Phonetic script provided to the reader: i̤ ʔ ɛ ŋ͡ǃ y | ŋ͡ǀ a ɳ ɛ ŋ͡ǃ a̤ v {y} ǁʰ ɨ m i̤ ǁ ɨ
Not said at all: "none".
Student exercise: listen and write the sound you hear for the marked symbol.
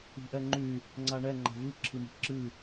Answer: ɨ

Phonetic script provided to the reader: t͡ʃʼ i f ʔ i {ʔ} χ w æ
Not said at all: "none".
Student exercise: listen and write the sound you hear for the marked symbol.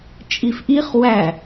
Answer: none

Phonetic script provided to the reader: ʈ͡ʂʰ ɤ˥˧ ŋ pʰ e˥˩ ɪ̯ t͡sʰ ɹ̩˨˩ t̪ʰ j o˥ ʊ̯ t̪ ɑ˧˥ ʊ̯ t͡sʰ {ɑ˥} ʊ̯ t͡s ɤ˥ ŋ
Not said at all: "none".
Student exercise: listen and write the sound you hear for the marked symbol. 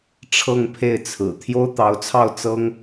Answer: ɑ˥˩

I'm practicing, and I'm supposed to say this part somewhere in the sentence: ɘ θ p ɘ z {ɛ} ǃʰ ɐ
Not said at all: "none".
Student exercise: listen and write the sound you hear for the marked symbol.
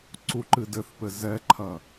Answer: ɛ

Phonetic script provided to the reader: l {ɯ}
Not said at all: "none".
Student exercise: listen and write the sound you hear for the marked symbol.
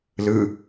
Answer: ɯ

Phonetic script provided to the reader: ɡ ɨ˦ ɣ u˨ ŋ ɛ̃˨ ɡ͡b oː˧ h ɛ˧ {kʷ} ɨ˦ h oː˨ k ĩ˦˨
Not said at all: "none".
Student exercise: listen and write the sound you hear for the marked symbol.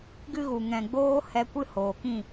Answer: kʷ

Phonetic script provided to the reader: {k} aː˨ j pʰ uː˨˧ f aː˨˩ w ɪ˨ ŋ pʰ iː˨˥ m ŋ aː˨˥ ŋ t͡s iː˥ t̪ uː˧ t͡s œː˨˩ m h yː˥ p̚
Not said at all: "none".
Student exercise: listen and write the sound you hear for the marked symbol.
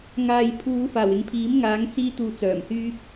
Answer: ŋ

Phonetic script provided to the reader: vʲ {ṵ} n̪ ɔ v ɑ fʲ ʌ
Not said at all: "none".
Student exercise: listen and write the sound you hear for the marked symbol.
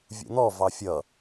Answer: ṵ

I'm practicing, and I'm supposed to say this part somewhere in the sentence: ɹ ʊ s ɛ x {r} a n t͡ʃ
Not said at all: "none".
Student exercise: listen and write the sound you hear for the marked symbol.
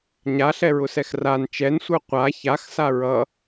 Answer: r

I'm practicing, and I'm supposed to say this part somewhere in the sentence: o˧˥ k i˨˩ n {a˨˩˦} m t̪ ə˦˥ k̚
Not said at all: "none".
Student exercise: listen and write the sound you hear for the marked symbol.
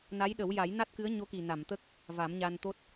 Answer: a˨˩˨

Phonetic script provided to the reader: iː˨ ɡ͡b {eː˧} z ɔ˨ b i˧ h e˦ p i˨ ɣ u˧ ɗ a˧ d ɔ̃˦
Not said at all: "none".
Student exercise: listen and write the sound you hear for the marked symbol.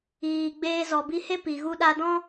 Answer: eː˧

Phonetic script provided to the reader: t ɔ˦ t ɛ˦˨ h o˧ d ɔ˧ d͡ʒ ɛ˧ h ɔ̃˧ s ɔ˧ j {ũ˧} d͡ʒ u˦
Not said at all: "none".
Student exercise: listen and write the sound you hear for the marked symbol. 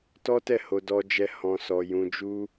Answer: ũ˧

